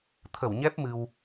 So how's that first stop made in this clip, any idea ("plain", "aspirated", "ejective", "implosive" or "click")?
aspirated